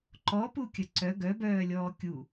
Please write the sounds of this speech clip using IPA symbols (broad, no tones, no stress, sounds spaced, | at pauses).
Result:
ǃ ɔ p u kʲ ə ǀ œ ɡ œ b œː lʲ ɔː kʲ u